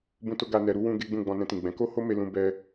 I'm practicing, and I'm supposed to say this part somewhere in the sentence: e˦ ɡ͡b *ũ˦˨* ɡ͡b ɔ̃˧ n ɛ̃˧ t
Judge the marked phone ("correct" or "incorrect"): correct